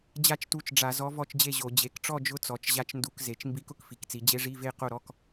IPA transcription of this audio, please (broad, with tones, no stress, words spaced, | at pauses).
d͡ʑa˥˨t͡ʃtu˧˥t͡ʃɖ͡ʐa˧˩˧ zɔ˧˥vɔ˥˨t͡ʃd͡ʑe˥˨ʑo˧˩˧ d͡ʑe˩˧kʈ͡ʂɔ˥˨d͡ʒʊ˧˥ t͡sɔ˩˧t͡ʃʑa˧˥t͡ʃndu˧˩˧k ze˩˧t͡ʃmbi˧˥k ʊ˧˥kfi˩˧kt͡si˩˧ d͡ʑe˧˥ʐi˧˥˧ve˥˨ qo˥˨ɾɔ˧˥˧k